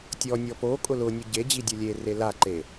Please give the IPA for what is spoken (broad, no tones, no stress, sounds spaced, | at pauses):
tʲ ɔ nʲ ɔ p o kʼ ʊ l ʊ nʲ u ɟ e d͡ʑ i dʲ ʊ lʲ e r e l a ǃ e